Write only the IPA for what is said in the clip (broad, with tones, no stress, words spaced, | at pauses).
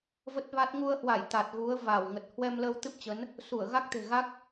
və˦˥t̚va˦˥t̚ ŋu˧ə̯hwa˧˩j t̪a˨˩t̚ɣu˨˦ə̯ va˧˩wŋə˨˩t̚ hwɛ˧mləː˧wt̪ɨ˦˥p̚t͡ɕə˨˦n | su˧˩ə̯ ɣa˦˥k̚t̪e̤˨˩ɣa˦˥k̚